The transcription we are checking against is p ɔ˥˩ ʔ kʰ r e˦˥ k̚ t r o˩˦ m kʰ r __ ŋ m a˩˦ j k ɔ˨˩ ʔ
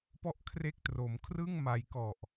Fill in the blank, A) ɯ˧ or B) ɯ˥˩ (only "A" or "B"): B